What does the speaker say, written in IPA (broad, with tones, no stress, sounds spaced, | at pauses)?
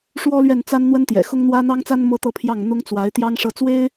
ʂ w ɔ˥ l ɥ ɛ˥˩ n t͡s a˥ n n̪ w ə˥ n t̪ j ɛ̰˨˩ x ʊ˥ ŋ n̪ w ä˥ n̪ ɑ˥ ŋ t͡s a˥ n m ɤ˥ t̪ ɤ˥˧ pʰ j ɑ˥˩ ŋ n̪ ʊ˥ ŋ t͡s w a˧˥ ɪ̯ t̪ j ɑ˥ ŋ ʂ ɤ˥˩ t͡s w e˥ ɪ̯